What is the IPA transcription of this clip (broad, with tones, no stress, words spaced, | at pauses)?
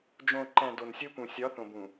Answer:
d͡ʒõ˨ǃæ̃˨ do˨nsʲo˦pũ˨ sʲɒ˨˦θõ˨bũ˨